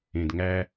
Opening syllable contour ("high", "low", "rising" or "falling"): low